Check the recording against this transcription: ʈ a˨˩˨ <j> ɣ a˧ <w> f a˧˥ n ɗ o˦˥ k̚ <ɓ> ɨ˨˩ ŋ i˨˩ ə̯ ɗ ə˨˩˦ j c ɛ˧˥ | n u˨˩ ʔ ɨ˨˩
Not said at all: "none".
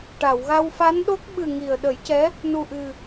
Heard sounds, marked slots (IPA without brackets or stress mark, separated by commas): w, w, ɓ